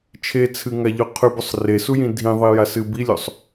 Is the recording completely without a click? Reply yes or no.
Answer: yes